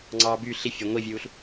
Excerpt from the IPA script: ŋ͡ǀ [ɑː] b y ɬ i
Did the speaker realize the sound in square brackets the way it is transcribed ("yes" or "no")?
yes